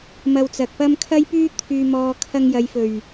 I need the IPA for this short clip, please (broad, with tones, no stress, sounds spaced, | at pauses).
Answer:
m ɐ˧ w t͡s ɐ˨ k̚ p ɐ˥ m kʰ ɐ˥ j p yː˥ t̪ʰ yː˧ m ɔː˨ kʰ ɐ˧ ŋ j ɐ˨˧ j f ɵ˨˩ ɥ